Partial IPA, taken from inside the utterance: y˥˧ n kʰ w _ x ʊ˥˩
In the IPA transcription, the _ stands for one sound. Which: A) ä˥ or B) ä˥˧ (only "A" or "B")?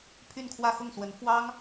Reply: B